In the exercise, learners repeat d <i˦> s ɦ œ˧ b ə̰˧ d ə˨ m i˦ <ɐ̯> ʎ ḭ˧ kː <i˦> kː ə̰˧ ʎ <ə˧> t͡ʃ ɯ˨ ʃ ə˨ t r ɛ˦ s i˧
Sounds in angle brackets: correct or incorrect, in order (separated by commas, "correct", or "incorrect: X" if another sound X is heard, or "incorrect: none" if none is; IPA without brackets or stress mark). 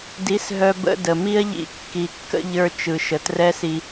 incorrect: i˨˦, correct, incorrect: i˨, incorrect: ə˞˧